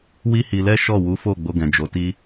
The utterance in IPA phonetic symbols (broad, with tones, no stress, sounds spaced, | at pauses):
w i˦ h i˧ l ɛ˦ ʃ ɔ˦˨ w u˨˦ f o˦˨ ɡ͡b o˧ ɡ ɛ̃˨ d͡ʒ o˨˦ t i˦